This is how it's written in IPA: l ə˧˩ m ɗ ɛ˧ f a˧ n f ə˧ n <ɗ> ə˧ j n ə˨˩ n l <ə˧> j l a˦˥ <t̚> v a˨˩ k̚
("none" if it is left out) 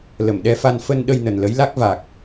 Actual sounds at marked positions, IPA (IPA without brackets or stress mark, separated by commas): ɗ, ə˨˦, k̚